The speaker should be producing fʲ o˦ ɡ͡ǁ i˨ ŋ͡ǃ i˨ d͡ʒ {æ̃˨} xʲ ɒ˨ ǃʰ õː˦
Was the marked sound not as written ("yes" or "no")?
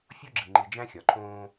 yes